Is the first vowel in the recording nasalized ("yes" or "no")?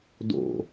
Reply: no